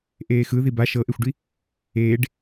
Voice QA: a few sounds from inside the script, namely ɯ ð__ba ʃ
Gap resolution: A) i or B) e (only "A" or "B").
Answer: A